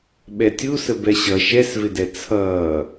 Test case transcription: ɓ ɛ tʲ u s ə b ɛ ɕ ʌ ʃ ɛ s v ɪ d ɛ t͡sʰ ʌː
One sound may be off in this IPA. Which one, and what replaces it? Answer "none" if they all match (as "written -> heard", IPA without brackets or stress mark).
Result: none